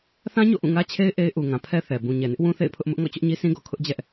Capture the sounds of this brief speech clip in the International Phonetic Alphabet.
θ ã˦ ɲ o̰˦˨ ʔ ũ˦˨ ŋ ä˦ t͡ɕʰ e˦ ɪ̯ ʔ e˦ ɪ̯ ʔ u˨ ŋ ã˨ pʰ ɛ˦ θ ɛ˨ b ũ˨ ɲ ɛ˨ n ɪ˦ ʔ w ũ˦ θ ḛ˦˨ ɪ̯ pʰ ʊ˦ ʔ m ʊ˦ ʔ ŋ ɔ̰˦˨ t͡ɕ ʊ˦ ʔ ɲ i˦ s ĩ˦ ɡ ɔ̰˦˨ kʰ ʊ˦ ʔ d͡ʑ ɛ˦ ʔ

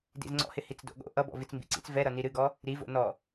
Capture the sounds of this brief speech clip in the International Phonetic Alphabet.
d ḭ z ŋ͡ǀ ɔ̰ h ɪ h i t͡s d o̰ ɠ o̰ ʔ ʌ b ɔ̰ v i t͡s m b ḭ ǀ ḭ t͡s v ɛ ɾ ʌ n i ɾ ɨ ɡ ɔ | ɾ i v o̰ n ɔ

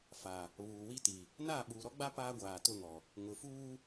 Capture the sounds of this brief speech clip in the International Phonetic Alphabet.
f a˨ | β uː˨ w i˦ t i˨ | n aː˦˨ ɓ uː˨ ɾ ɔ˦ ɡ͡b a˦ p aː˦ ɡʷ aː˨ t ʊ˦˨ ŋ ɔ˨ | ŋ ʊ˨ f uː˦

